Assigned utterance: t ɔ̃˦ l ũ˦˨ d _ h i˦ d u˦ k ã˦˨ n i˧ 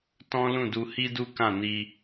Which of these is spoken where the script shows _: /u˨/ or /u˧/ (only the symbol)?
u˧